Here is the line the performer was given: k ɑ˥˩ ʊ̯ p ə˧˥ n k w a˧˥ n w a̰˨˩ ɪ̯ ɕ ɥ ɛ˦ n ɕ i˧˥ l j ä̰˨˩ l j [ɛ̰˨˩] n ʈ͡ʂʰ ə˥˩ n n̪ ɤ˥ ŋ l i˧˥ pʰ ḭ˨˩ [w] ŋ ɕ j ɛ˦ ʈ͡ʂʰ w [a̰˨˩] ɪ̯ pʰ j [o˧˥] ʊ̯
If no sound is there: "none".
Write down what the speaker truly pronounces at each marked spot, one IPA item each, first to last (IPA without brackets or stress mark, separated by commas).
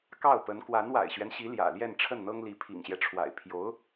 ɛ˥˧, none, a̰˨˩, o˧˥